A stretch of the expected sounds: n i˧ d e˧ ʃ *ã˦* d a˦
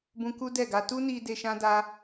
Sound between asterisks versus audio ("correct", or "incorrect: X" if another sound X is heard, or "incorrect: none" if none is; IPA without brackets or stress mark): correct